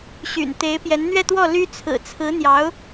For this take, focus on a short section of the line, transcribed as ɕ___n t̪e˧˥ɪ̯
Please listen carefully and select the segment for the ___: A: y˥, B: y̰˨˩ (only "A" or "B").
B